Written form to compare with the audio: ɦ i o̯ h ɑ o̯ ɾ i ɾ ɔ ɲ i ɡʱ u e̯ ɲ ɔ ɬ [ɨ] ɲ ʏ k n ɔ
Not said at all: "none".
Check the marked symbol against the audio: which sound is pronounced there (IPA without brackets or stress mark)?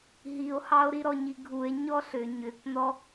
ʏ